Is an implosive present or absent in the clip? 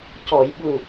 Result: present